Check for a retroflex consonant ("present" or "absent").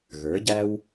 absent